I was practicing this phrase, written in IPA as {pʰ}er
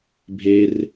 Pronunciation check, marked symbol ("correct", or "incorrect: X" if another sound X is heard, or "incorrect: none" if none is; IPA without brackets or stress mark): incorrect: bʱ